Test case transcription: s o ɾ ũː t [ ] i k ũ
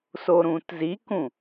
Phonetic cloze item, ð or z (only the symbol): z